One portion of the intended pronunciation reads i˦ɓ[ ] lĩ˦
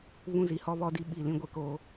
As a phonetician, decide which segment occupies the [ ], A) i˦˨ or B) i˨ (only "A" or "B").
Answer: A